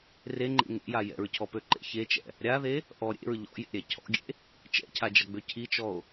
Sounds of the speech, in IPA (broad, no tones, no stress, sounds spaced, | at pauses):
r e ŋ͡ǃ ḛ ŋ ḛ j a j ɛ̰ ɹ cʰ ɔ p ø ǃ ḛ ç e t͡ʃ ɛ̰ | ɾʲ a ð e | ʔ ɔ ɾʲ ḛ ɹ ʎ ɔ̰ j ḛ ɾʲ ɛ cʰ ɔ̰ ɡʲ ḛ | t͡ʃ ɛ̰ cʰ a d͡ʒ ʌ ɡ͡b ø cʰ i t͡ʃ ɔ o̯